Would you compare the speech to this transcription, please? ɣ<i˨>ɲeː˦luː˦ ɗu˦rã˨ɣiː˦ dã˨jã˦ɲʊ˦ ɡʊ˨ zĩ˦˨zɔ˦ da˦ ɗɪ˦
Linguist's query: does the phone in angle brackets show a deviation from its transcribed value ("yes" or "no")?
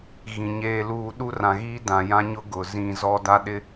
yes